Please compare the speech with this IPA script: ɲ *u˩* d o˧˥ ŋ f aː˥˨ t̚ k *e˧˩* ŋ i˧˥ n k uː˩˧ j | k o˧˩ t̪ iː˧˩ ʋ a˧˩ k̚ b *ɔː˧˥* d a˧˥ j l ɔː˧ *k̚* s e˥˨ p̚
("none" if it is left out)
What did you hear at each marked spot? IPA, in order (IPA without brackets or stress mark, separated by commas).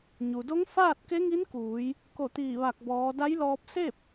u˩, e˧˥, ɔː˧˥, p̚